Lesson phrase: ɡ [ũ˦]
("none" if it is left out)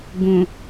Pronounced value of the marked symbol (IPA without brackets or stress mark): ũ˨